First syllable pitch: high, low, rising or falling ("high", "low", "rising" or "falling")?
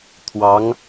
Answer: rising